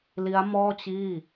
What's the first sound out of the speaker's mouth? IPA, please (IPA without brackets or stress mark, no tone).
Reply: l